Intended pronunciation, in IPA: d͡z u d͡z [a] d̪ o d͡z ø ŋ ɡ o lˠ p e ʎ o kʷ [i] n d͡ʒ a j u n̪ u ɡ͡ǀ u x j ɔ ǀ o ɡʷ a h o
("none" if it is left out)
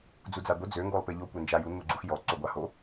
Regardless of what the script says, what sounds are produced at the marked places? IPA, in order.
a, e

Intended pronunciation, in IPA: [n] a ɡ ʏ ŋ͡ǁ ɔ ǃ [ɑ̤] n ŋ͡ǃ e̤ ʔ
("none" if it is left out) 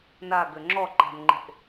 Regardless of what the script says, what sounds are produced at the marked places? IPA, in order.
n, a̤

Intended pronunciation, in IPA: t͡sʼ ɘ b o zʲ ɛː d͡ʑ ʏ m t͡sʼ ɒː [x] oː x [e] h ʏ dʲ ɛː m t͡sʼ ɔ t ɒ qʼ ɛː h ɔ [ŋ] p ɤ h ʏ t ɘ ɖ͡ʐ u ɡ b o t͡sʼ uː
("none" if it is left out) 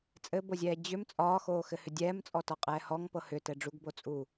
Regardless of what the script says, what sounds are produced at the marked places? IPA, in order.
x, ɘ, ŋ

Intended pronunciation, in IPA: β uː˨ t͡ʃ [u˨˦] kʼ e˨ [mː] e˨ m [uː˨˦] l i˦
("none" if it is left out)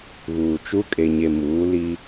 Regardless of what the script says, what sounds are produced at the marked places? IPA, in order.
u˦, ɲ, uː˨˦

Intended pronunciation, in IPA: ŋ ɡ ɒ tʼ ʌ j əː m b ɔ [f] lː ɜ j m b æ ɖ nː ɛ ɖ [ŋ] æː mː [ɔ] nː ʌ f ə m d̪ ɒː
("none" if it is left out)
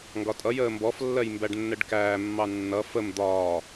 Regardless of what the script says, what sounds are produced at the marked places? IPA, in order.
f, k, ɑ

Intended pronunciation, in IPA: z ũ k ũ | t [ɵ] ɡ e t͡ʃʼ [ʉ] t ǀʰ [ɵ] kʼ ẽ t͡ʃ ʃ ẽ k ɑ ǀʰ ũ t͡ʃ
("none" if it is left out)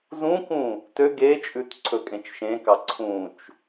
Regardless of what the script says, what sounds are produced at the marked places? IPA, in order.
ø, ʉ, ɵ

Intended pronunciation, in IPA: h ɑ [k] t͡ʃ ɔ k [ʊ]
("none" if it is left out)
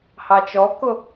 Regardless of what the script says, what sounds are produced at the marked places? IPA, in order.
none, ʊ

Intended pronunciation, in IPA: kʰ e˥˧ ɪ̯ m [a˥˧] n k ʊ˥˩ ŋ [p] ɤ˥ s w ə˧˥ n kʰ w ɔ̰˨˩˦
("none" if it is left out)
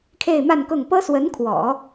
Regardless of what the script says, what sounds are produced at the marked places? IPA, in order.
a˥˧, p

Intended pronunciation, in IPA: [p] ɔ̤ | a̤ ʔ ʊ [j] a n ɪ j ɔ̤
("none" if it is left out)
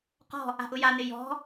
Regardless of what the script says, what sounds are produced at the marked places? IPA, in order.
q, j

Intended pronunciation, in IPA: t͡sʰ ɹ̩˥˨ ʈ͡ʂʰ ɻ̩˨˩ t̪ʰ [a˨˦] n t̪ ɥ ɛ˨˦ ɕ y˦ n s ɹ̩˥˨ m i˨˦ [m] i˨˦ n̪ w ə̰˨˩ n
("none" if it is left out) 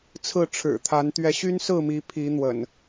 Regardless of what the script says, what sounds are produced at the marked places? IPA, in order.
a˨˦, pʰ

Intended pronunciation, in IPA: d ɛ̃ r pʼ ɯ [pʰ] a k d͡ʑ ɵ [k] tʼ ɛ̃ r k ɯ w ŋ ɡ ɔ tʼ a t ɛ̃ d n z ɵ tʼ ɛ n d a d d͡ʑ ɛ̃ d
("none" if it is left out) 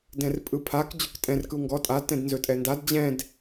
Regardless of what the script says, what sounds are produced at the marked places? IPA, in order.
pʰ, k

